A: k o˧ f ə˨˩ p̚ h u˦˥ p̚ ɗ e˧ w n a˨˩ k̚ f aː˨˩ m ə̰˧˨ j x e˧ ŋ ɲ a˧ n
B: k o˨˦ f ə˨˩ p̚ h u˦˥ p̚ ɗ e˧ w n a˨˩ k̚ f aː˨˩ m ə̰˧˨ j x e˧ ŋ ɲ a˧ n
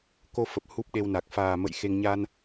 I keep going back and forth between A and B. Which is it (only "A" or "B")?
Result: A